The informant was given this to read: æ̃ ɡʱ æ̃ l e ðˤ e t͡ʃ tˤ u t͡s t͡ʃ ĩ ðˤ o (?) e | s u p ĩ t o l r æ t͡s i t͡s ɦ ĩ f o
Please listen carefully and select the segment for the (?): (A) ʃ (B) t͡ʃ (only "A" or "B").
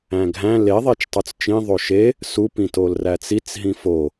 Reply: A